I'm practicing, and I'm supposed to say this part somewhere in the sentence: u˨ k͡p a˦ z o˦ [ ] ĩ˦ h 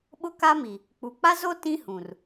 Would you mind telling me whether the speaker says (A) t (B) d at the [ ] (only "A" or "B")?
A